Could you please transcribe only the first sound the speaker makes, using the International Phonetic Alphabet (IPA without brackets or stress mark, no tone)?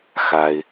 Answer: x